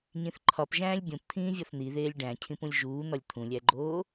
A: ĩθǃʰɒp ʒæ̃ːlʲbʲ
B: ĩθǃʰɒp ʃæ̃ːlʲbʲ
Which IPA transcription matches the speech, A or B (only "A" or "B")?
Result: A